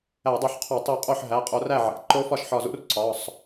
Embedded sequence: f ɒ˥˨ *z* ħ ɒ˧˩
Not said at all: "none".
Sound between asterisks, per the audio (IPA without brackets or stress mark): ʃ